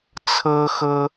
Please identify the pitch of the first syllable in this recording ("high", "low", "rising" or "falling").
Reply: high